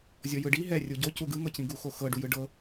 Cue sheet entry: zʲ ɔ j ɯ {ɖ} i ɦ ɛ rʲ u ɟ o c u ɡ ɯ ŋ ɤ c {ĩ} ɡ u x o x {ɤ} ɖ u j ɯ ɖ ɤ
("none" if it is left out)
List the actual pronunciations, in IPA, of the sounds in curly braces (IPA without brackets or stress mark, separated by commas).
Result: ɖ, ĩ, ɤ